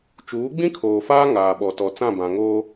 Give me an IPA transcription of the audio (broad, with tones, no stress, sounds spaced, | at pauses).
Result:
t͡ʃ uː˨˦ ɡ͡b ĩ˦ kʰ oː˨ f aː˦ ŋ aː˨ ɓ ɔ˨ t ɔ˨ t͡s ã˦˨ b ã˨ ŋ oː˦